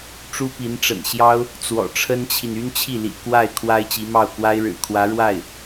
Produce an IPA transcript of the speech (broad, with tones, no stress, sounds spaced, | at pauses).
ʈ͡ʂ u˥ p i˧˥ n ʈ͡ʂ ə̰˨˩ n ɕ j ɑ˥ ʊ̯ | t͡s w ɔ̰˨˩ ʈ͡ʂʰ ə˥ n t͡ɕʰ i˨ n y˥ n t͡ɕʰ i˥˩ l ḭ˨˩ k w a˥˩ ɪ̯ kʰ w a˥ ɪ̯ t͡ɕ i˧˥ m ɑ˥˩ ʊ̯ k w a˥ ɪ̯ ɻ ɻ̩˨˩ kʰ w ä˧˥ ɻ w a˥˩ ɪ̯